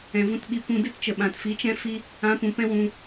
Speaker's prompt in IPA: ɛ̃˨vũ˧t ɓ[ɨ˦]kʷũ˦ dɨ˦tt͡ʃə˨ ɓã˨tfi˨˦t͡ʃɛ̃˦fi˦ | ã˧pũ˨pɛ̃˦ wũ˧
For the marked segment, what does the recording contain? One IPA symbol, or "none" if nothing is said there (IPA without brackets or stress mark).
i˦